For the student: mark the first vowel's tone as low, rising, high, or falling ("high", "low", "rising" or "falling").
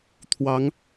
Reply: rising